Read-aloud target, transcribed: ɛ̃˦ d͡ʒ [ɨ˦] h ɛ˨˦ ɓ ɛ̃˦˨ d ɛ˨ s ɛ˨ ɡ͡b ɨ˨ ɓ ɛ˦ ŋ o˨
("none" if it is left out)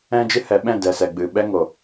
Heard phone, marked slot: ɨ˦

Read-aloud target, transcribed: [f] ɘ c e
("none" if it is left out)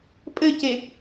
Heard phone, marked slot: pʼ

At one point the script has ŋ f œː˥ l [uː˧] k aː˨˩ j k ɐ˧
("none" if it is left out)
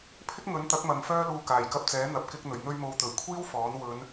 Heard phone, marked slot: uː˧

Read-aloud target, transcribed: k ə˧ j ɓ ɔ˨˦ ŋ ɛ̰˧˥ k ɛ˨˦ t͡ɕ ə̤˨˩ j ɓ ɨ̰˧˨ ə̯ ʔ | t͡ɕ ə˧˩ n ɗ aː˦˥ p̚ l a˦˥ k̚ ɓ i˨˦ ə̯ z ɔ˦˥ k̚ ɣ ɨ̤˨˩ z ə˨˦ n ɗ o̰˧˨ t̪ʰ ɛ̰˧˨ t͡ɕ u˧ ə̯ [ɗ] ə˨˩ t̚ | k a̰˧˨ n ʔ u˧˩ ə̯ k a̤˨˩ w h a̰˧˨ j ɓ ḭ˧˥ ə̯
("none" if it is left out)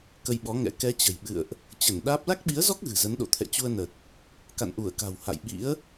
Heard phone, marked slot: n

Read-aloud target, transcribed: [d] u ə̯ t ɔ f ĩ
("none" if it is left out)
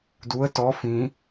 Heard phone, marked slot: d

